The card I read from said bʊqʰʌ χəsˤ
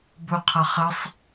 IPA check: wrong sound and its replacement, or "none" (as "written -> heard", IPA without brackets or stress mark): none